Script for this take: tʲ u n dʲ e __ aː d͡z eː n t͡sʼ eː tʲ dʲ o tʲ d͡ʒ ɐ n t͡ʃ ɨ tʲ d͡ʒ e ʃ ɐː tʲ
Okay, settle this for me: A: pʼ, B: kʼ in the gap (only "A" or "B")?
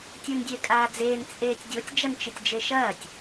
B